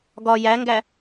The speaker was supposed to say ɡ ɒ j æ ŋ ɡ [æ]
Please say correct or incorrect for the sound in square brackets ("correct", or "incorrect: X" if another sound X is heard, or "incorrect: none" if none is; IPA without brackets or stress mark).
correct